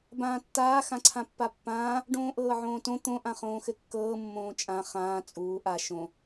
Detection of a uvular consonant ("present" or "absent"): present